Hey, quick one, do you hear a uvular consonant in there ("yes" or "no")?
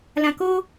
no